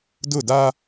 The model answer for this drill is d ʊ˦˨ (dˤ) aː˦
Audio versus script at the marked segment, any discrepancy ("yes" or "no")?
yes